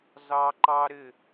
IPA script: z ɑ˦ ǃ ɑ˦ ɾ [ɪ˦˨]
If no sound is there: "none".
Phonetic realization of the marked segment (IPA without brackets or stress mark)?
ɪ˦˨